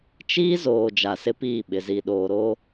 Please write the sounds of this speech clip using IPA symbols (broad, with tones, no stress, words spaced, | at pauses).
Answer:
t͡ʃiː˦zoː˨ d͡ʒa˨sɪ˦piː˦˨ɓɪ˨ zi˨ɗoː˨ ɾoː˦